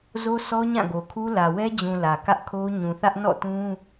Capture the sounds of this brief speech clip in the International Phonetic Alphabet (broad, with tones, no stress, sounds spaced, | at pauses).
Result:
z o˦ sʰ ɔ˦ ɲ ã˦˨ ɡ o˨ kʰ u˦ l ä˨ w ɛ˦ d͡ʑ ũ˨ l ä˨ k ä˦ ʔ kʰ o˦ ɲ ũ˨ θ ä˦ ʔ n ɔ̰˦˨ t ũ˦